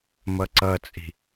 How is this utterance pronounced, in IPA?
m ʌ ǀ ʌ t͡sʼ i̤

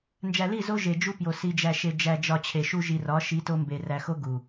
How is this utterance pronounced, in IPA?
n d͡ʒ æ˨ l i˦˨ z o˦ ʒ e˨ d͡ʒ u˦ p j o˨ s i˨ d͡ʒ æ˨ ʃ e˨ d͡ʒ æ˨ d͡ʒ ɒ˨ t͡ɕʰ e˨ ʃ u˦ ʒ i˨ r ɒ˨˦ ʃ i˨˦ t o˦ m b e˨ r æ˨ x o˦ ɡ u˨

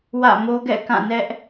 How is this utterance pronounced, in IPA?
w ä̰˦˨ m o˦ ɡ ɛ̰˦˨ k ã˦˨ n ɛ˦ ʔ

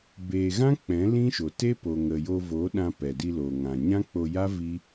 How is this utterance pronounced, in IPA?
b eː˨ ɣ ã˦ k͡p ɛ̃˨˦ l ĩ˦ ʃ o˨ t e˦ p o˨ ŋ ə˨ j o˧ v oː˨˦ ɗ ã˧ p ɛ˨ d i˧ l oː˨ ŋ ã˨ ɲ ã˦ k͡p o˧ j a˦ v i˦

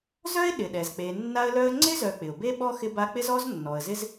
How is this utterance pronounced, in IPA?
z œ˥ ɪ̯ ɗ ɪ˩ ɗ ɛ˩ z k͡p e˨ nː a˦ ə̯ l œ˦ ə̯ ŋ͡ǀ ɪ˥ z œ˨ k͡p ɪ˩ ʊ̯ b e˦ ɓ ɔ˥ x ɪ˦ b a˦ k͡p ɪ˥ z ɔ˥ z nː ɔ˨ ə̯ z ɪ˥ z

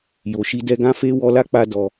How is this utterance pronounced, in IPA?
j o˨ ʃ i˧ d ɛ˧ ɡ ã˦ f e˦ w ɔ˦ l a˦ k͡p a˧ d ɔ˧

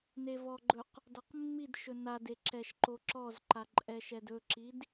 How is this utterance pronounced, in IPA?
n e v ɔ ɡ͡ǃ ɵ q | d ɔ q mː i d ʃ ɵ n a d e ǁ ɛ ʃ ǃ o ǁ ɔ z ǃ a ǃʼ ɛ ʃ ɛ d ɵ ǁ i d

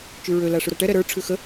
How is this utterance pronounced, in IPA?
t͡ʃ ʉ ɹ ø l a ʂ ʉ ɾ a ʈ ɛ ɾ ɛ ɾ ə˞ ʈ͡ʂʰ ʉ x ə

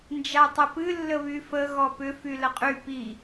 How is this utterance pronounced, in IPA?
n d͡ʒ a tˤ ə p ɨ lː ə β y f ə ɣ ɔ p ʏ f y l ə qʼ y p i

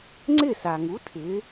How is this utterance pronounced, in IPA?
ŋ͡ǀ ɪ˥˩ s a˩ ŋ u˩˥ tʰ ɪ˩˧

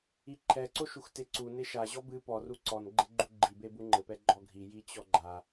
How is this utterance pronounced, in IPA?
i ǃʰ ɛ ǀ o ʃ u x t e ǀ u n e ʃ a ʑ ɔ b ɨ p ɔ r u ǀ ɔ n ɡ͡ǃ e ɡ͡ǃ u ɡ͡ǃ i b e b u ŋ͡ǃ ɘ p ɛ ɡ͡ǃ ɔ ɡʱ i j i t͡ɕ ɔ ɡ͡ǃ a

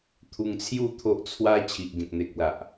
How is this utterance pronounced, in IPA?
t̪ʰ u˧ ŋ t͡sʰ j u˥˧ t̪ʰ o˦ ʔ t͡sʰ w a˦ t͡ɕʰ i˨ ʔ ɡ ẽ˨ k̚ n̪ e˨ k̚ l a˨ ʔ

